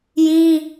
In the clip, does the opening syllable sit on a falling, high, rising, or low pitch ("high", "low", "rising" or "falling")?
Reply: high